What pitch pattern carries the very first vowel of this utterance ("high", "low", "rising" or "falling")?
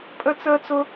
high